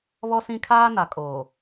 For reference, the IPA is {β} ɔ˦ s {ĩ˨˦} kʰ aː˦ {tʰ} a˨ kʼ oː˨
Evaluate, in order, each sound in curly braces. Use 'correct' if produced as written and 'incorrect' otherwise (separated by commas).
correct, incorrect, incorrect